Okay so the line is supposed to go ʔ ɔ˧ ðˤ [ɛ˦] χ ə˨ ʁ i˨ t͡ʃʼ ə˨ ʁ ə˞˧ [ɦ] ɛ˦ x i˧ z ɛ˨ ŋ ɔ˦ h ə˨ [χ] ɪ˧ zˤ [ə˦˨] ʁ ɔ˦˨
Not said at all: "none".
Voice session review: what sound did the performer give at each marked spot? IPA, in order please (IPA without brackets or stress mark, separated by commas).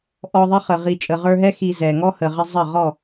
ɪ˦, ɦ, ʁ, ə˦˨